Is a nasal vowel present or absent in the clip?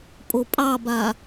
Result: absent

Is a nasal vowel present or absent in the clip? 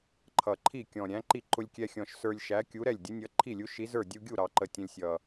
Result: present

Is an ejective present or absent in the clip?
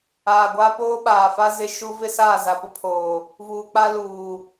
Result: absent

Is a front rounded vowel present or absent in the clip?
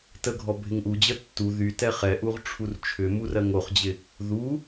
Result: present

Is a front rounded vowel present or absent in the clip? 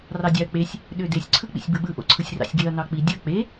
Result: present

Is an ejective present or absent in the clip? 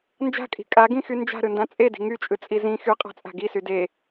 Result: present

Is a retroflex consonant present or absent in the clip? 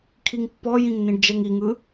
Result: present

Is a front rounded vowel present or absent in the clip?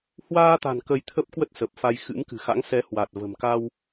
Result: absent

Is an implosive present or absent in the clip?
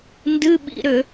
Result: present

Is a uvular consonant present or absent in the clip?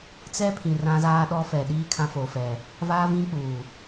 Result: absent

